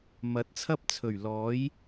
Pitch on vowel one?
rising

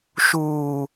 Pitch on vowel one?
low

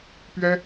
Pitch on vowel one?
high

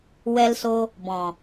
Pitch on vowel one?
high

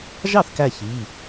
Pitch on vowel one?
falling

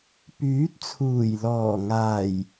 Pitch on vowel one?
rising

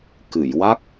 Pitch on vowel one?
low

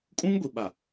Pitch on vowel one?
high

